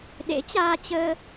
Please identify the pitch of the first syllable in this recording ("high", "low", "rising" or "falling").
rising